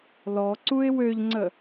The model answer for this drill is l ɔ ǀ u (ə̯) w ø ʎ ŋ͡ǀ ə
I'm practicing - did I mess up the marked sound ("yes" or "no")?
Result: yes